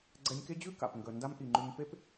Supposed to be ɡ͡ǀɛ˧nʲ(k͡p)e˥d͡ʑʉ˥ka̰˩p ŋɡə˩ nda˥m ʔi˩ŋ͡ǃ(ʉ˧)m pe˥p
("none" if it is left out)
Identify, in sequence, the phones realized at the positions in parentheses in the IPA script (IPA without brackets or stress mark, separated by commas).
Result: k, ʉ˧